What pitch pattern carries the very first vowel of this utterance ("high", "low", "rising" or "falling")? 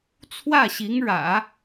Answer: falling